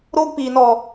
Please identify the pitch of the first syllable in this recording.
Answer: high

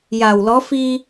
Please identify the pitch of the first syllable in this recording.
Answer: low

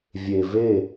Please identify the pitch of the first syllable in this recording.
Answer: low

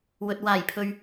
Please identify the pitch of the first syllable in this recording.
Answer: low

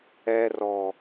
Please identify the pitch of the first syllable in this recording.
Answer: low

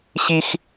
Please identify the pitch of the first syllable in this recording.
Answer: high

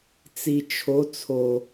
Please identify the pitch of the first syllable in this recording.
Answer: low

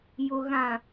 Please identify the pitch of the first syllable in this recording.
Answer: low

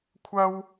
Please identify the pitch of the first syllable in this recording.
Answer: high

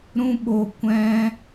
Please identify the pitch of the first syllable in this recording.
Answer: high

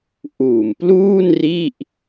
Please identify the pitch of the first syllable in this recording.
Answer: low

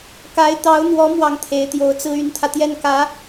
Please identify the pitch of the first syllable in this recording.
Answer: rising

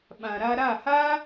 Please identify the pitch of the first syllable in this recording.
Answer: low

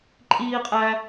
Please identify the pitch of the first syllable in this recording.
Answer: high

